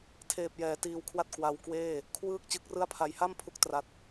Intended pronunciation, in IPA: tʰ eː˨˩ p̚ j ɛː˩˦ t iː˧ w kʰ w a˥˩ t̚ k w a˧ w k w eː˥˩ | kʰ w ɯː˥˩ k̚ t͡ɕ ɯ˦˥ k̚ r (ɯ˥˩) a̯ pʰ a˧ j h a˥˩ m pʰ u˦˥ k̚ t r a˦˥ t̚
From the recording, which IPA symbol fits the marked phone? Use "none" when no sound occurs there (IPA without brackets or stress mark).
ɯ˥˩